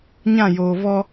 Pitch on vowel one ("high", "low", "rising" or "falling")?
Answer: falling